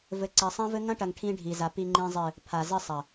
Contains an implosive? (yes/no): no